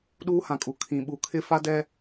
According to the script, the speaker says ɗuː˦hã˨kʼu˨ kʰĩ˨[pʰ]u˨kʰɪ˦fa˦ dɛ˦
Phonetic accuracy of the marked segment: incorrect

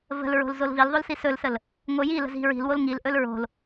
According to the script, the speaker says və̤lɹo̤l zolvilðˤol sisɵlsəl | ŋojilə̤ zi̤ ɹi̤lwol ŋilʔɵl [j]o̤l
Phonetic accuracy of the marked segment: incorrect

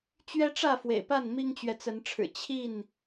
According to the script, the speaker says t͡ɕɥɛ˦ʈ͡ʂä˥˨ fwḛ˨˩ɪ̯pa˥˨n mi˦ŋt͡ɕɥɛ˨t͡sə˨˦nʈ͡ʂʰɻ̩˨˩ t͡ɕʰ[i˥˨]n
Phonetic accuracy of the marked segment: correct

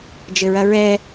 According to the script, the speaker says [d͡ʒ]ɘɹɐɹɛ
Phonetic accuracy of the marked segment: correct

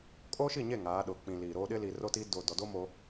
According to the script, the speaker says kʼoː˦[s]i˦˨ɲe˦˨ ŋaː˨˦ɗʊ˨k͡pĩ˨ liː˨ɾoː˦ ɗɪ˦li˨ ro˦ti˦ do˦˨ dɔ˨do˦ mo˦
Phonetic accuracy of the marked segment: incorrect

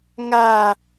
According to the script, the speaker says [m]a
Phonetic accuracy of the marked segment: incorrect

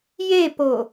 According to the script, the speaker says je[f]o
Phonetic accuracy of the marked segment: incorrect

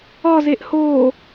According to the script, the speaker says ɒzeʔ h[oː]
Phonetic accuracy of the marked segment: correct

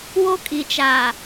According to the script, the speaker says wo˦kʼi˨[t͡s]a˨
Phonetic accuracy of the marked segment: incorrect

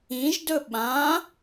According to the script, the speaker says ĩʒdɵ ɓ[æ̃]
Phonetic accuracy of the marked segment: incorrect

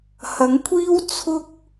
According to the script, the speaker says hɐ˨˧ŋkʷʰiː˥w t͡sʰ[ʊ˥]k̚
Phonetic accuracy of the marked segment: correct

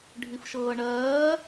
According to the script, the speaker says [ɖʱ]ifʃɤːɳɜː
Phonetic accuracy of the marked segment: correct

